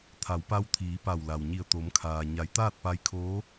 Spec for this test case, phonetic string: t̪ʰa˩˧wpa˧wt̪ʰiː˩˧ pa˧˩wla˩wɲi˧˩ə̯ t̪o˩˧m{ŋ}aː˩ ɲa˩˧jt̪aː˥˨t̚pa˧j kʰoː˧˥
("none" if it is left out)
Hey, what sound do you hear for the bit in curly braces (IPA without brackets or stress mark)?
kʰ